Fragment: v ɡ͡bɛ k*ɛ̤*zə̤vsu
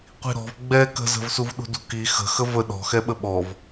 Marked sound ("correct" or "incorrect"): incorrect